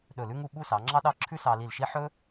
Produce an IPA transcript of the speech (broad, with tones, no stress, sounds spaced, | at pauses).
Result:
ɗ ɵ˧˩ l ʉ˥ ŋ u˥˧ ɓ u˥˧ s ɑ˩˧ ŋ͡ǁ ɑ˥ ɗ ɑ˥˧ ǁʰ ʉ˥ s ɑ˧ l i˧˩ l ʃ i˥ ħ ɵ˥